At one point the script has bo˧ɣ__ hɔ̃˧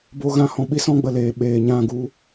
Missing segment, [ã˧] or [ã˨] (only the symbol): ã˧